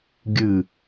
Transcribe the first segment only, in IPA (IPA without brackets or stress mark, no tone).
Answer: ɡʲ